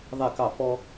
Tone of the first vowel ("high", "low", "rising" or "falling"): falling